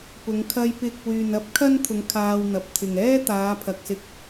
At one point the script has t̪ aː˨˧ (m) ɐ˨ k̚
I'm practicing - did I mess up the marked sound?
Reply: yes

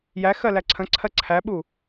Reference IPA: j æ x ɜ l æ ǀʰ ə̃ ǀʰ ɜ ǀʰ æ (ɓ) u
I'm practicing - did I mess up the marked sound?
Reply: no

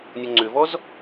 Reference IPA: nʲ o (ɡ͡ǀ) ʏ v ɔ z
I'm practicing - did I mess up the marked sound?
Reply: yes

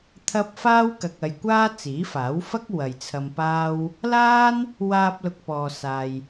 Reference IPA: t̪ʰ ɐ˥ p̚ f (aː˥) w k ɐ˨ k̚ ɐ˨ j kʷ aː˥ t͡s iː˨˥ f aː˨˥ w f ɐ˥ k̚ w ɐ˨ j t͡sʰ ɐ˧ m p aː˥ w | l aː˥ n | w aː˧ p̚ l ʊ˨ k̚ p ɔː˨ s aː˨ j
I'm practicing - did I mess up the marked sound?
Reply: no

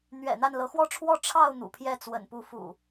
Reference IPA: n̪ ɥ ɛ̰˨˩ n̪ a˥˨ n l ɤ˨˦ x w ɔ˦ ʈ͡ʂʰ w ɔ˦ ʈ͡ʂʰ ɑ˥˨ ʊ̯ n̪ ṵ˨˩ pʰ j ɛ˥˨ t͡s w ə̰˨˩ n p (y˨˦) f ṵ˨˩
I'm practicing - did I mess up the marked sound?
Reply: yes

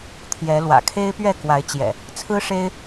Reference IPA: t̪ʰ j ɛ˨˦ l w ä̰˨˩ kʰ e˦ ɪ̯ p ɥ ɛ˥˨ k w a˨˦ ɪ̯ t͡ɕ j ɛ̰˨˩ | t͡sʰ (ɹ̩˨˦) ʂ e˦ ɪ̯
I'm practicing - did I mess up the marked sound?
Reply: yes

